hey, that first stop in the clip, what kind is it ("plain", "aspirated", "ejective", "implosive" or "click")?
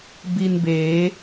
plain